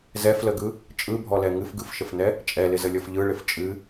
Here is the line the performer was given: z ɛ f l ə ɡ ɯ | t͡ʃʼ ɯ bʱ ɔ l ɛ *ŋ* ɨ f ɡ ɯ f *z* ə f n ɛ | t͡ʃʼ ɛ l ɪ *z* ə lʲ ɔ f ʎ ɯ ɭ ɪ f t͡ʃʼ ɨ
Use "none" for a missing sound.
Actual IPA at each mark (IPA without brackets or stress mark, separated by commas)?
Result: ŋ, ʃ, z